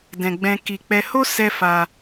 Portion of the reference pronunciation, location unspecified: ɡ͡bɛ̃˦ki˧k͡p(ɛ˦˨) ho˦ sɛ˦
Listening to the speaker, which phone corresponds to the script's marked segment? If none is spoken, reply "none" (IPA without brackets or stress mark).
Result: ɛ˦